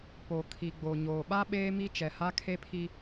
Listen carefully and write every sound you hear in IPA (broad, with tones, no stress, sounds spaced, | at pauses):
p o˨ kʰ i˨ ɡ͡b o˨ ɲ oː˨ ɓ a˦ ɓ eː˦ m i˦ t͡ʃ ɛ˨ h a˦ kʰ e˦ pʰ i˦